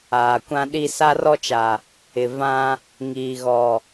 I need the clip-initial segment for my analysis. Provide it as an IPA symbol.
aː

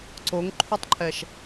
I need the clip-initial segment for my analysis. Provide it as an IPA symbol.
ǀ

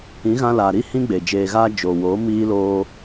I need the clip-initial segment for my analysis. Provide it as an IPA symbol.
ĩ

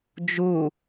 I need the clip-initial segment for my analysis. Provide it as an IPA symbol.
d͡ʒ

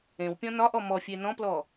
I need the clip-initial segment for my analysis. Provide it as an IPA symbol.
ẽ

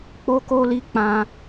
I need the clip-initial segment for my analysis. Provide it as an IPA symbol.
k͡p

